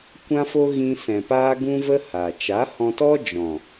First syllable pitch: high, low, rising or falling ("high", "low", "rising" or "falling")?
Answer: high